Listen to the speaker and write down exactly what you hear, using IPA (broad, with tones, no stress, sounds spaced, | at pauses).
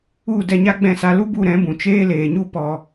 u˦˨ d ɛ˧ ɲ a˦ ɡ͡b ɛ̃˦˨ s a˧ l u˦ b u˦˨ ɾ ɛ̃˨˦ b ũ˨ t͡ʃ eː˦ l eː˨ ɲ u˦ p ɔ˧